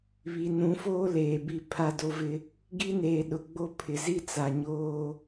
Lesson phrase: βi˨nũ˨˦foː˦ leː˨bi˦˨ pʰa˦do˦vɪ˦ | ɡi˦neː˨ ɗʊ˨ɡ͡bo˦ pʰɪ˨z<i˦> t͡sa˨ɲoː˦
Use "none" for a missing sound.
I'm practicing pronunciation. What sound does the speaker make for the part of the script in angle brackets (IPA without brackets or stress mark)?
i˦